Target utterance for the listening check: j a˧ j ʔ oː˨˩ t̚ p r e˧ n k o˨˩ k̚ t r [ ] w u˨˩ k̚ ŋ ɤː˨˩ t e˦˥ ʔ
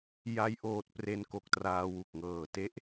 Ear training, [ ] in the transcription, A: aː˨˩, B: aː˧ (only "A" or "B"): B